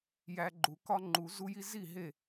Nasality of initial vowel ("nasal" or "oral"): oral